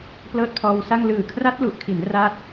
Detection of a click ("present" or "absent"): absent